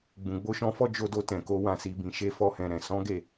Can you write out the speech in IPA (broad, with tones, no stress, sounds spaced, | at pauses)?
ɡ͡b ũ˨ ɡ͡b o˧ ʃ ɔ̃˧ f ɔ˦ d͡ʒ o˧ d o˧ t ɛ̃˨ k o˨˦ w ã˦˨ s i˨˦ b ĩ˧ ʃ e˧ f ɔ˦ h ɛ̃˧ ɾ ɛ̃˨ s ɔ̃˨˦ ɡ e˦˨